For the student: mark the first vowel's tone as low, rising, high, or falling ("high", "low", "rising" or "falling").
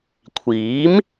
rising